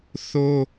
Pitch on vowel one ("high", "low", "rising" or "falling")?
high